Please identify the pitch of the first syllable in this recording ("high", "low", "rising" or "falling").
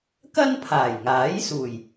high